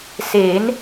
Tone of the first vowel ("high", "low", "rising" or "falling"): rising